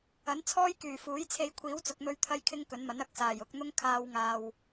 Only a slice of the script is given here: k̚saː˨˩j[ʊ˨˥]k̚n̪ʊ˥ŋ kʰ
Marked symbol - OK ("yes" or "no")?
yes